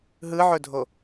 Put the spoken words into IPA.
ɦɯʕɵdʱo

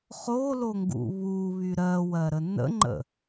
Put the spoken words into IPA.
χoloŋɡṵ βuβy ɾɜwɜɾə nə̰ŋ͡ǃə̰

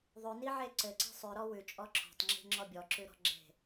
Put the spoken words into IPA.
ðˤʉniʕe ǀɘǀe̤ sˤʉɾɔ wʉt͡ʃʼɔ ǁʰɔ̤tˤŋ͡ǁi̤ŋ͡ǁɔ bʲɔǁʉ ɾɔ̤ɡ͡ǁe̤

